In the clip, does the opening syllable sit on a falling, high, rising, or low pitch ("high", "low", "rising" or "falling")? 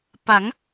rising